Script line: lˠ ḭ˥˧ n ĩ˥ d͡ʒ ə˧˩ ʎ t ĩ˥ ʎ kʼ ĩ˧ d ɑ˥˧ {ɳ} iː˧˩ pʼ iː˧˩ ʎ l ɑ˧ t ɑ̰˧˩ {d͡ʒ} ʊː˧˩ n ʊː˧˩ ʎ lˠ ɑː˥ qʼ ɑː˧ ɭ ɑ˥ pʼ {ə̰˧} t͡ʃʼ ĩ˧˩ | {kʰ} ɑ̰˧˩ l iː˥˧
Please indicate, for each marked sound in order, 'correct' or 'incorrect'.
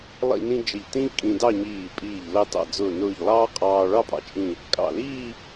incorrect, incorrect, incorrect, incorrect

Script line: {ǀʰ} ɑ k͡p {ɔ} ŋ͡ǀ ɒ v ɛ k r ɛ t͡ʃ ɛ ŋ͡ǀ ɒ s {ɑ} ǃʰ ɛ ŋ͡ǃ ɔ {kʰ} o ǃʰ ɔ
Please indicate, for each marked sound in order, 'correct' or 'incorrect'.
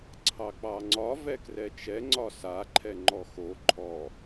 correct, incorrect, incorrect, incorrect

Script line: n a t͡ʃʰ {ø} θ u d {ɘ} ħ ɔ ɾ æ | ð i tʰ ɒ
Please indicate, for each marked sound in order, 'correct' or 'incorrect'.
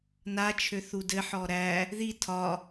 correct, correct

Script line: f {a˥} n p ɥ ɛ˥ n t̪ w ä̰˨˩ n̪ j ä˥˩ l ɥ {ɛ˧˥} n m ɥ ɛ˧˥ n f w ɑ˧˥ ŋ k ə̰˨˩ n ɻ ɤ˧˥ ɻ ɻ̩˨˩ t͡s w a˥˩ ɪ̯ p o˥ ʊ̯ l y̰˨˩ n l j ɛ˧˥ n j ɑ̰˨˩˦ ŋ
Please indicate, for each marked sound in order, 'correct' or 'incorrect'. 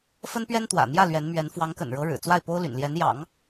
incorrect, correct

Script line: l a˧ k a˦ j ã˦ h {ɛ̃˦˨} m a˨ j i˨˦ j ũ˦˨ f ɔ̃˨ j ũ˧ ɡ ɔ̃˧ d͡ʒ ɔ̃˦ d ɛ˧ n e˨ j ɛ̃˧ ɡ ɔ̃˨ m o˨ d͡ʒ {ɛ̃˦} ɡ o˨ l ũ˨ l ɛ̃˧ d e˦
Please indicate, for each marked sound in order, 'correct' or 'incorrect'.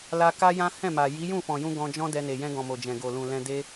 correct, incorrect

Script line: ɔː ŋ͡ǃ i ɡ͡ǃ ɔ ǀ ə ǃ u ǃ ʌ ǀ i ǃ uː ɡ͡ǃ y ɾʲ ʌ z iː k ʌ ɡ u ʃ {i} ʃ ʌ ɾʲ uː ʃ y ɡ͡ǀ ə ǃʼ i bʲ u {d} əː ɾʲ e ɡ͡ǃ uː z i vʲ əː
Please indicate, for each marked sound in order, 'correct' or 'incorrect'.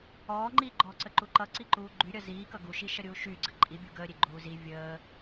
correct, incorrect

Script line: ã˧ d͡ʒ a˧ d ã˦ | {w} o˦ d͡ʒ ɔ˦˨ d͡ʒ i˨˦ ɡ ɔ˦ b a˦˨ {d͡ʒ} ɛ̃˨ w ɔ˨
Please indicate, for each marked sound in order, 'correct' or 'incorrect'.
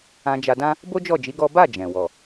incorrect, correct

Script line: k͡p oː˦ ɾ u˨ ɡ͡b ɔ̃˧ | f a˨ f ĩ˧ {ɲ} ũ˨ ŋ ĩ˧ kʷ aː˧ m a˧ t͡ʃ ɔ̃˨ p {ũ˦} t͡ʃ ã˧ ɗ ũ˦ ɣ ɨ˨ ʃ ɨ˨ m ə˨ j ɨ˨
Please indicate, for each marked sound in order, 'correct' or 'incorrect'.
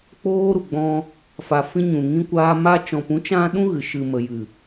correct, incorrect

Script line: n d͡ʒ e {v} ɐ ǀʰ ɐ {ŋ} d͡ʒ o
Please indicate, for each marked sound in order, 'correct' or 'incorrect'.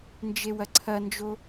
incorrect, incorrect

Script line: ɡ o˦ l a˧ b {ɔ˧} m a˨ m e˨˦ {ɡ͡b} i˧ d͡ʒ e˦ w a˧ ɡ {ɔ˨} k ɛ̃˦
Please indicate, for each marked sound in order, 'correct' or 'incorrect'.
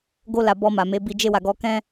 correct, incorrect, incorrect

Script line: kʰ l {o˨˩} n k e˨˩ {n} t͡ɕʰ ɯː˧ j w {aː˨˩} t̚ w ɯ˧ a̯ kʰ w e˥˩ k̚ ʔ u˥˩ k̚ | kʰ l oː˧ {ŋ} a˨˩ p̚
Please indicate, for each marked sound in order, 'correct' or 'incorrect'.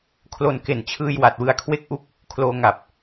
incorrect, correct, incorrect, correct

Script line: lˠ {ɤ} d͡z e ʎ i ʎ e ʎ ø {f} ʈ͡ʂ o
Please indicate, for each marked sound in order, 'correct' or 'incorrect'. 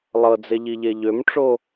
correct, incorrect

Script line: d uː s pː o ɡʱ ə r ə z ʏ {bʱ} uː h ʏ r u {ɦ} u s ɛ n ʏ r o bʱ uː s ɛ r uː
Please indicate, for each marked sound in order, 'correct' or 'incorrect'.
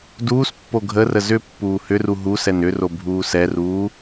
incorrect, correct

